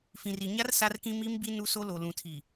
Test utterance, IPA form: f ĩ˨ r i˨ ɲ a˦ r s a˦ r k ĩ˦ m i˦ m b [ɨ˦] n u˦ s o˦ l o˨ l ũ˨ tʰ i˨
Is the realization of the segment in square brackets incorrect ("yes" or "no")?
yes